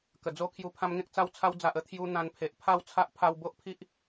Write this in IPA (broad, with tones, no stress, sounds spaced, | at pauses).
k ə˨˩ d͡z o˥˧ kʰ j u˧ pʰ ã˧ m ŋ ẽ˦ k̚ t͡s a˧ w t͡sʰ a˧ w d͡z a˨ ʔ ə˥˧ t̪ʰ j u˧ n̪ ã˧ n pʰ e˨ ʔ pʰ a˥˧ w t͡sʰ a˦ ʔ pʰ a˧ w b o˦ ʔ pʰ i˦ ʔ